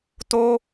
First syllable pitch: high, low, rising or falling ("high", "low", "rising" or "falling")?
high